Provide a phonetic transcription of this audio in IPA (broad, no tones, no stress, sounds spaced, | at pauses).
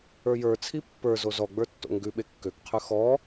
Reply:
ə˞ j ə˞ t͡sʰ i pː ə˞ z o z ɔ ɡ͡b ə˞ tː o̰ ŋ ɡ ʉ ɓ e kː ø k qʰ ʉ x ɔ